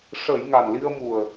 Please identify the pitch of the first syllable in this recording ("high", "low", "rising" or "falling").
low